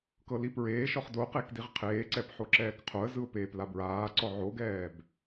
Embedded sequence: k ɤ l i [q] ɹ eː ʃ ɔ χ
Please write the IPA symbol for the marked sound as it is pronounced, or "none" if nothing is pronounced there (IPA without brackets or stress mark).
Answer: p